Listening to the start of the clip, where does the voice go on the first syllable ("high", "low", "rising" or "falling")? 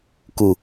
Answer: low